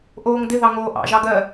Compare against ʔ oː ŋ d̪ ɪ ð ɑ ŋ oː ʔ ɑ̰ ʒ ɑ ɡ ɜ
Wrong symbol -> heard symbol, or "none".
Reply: none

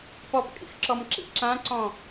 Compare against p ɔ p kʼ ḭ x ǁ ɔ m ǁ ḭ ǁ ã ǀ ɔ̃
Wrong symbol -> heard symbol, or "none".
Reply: none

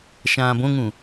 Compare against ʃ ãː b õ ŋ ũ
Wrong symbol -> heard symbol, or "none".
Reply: none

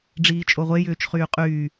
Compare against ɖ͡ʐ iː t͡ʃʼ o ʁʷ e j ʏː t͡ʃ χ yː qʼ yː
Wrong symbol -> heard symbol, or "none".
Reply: none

